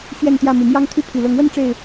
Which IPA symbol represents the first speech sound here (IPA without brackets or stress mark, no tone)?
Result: ɕ